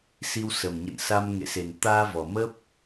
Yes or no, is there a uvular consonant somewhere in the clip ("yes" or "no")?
no